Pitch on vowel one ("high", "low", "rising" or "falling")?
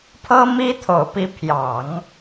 high